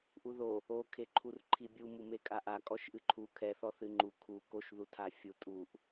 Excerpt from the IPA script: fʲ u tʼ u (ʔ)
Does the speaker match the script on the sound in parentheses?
yes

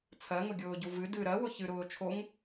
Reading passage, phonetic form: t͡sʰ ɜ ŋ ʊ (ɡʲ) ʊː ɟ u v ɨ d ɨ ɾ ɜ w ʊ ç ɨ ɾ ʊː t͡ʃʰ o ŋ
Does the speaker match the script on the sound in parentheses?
yes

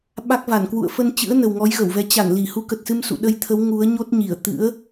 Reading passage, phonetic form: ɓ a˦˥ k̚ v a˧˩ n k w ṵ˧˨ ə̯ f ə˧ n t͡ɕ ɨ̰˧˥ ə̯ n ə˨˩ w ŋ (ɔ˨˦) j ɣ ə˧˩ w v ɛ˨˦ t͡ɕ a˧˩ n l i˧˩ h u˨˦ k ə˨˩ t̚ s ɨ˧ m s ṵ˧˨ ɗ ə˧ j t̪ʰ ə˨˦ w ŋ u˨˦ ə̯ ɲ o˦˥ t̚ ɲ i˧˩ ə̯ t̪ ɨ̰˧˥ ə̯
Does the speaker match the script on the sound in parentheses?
yes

